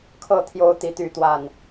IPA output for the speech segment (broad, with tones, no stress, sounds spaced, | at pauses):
kʰ ɤ˥˨ t̪ʰ j o˦ ʊ̯ t̪ i˨˦ t̪ y˨˦ t̪ w a˨˩ n